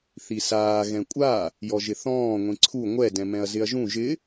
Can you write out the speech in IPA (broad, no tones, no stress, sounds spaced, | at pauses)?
θ i s aː ɣ ɛ̃ kʷʼ a | j ɔ ʒ ɪ θ ɔ̃ː ŋʷ ĩ ǀʰ u ŋʷ ɛ d ɛ̃ m ɛ̃ ɐ̯ z ɪ ɐ̯ ʒ ũ ʒ ɪ